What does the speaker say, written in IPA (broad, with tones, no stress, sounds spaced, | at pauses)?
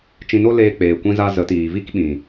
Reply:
t͡ʃ ĩ˧ n o˦ l eː˧ k͡p eː˨ kʷ ĩ˧ z a˧ z ə˨˦ t iː˨ v i˦ k ɓ ĩ˨